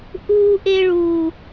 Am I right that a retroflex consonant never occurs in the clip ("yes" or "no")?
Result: no